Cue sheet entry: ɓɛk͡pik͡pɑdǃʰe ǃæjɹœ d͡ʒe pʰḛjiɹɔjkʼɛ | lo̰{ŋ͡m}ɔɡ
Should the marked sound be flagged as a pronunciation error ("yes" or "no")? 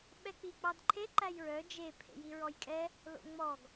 no